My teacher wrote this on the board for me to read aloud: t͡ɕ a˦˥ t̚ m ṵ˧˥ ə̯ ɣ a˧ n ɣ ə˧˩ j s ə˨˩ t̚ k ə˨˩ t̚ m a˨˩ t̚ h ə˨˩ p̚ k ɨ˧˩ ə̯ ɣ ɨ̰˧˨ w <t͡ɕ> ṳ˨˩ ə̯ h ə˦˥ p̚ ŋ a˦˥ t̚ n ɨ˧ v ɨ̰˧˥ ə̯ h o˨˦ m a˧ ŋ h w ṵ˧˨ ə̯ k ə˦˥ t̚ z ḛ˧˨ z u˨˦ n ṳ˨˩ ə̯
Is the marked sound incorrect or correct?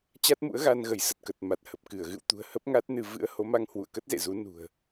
incorrect